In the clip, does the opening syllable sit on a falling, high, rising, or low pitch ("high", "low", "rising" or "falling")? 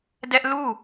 high